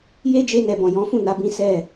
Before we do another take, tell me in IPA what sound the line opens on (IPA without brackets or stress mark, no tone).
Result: j